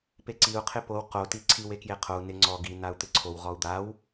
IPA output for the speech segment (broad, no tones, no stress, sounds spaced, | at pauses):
p e ǀ i u̯ qʰ ɪ p o w q o t i ǀʰ i w e k j e qʰ o u̯ n ɪ ŋ͡ǀ ɔ ɡ i n a u̯ t̪ ɪ ǀʰ o w ʁ ɔ u̯ d̪ a w